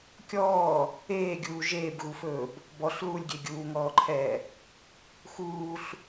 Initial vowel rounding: rounded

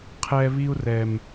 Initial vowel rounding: unrounded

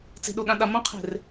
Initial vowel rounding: unrounded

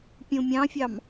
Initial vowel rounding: rounded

